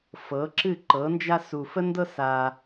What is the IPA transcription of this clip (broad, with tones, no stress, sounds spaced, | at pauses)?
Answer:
f ɤ˩˥ ǁ ɨ˥˩ ǃ ɤ˩˥ n d͡ʒ a˥ s u˩ f ə˥ n d ɤ˥ s a˩